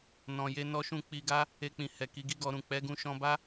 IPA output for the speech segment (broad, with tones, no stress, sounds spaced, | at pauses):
n ɔ̃˨ j e˧ n ɔ˧ ʃ ũ˧ k͡p i˧ ɡ a˦ | e˧ k͡p ĩ˨ h ɛ˨ k i˨˦ ɡ i˦ ɡ ɔ˧ ɾ ũ˨ k͡p ɛ˨˦ ɡ ũ˧ ʃ ɔ̃˧ b a˦